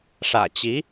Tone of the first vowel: low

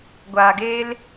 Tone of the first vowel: low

